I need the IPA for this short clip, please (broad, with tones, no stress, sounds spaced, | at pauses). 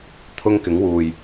t̪ʰ ʊ˥ ŋ k ɪ˨˥ ŋ w uː˨ j